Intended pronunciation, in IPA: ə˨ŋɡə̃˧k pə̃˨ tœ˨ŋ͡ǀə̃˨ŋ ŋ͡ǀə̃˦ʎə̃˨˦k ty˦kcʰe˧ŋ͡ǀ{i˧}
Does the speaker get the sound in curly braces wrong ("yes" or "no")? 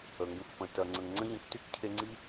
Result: yes